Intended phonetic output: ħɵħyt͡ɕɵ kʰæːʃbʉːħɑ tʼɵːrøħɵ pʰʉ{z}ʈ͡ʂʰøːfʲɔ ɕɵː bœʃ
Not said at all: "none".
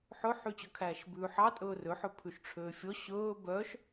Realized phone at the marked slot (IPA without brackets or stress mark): ʃ